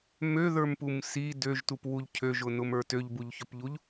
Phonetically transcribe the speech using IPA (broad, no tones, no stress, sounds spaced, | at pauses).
m ø ð ə˞ m p u m s i d ø ʒ t u p w u ʎ cʰ ø ʒ ʊ n ʊ m ə˞ t ø ʎ b u ʎ ç ɵ p ʎ u ʎ